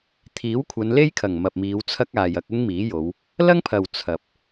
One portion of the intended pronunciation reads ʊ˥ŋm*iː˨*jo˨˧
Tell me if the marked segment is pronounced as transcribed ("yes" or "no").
no